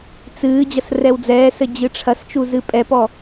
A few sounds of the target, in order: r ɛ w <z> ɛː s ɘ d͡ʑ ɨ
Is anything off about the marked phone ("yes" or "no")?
yes